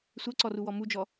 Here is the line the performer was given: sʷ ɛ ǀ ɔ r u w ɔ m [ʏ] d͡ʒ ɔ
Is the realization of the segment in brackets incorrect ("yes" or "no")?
yes